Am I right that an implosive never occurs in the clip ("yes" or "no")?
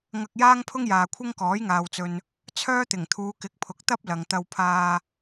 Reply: yes